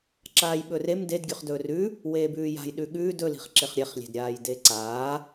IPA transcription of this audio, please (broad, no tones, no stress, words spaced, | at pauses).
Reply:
ǁaːjɓɵrem ded ɡʲʉχdɵːrʉ | weːbʉːja̤j ɗʉɠʉːd ɵ li̤χǁeχɾʲeχ lʲe̤dɾʲaːjdeǀaː